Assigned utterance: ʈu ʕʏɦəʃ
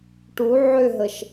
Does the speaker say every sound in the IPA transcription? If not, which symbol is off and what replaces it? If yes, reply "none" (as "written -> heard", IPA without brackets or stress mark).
none